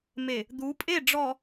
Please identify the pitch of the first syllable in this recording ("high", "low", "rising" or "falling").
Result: low